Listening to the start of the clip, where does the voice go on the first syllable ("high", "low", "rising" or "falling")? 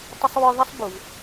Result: high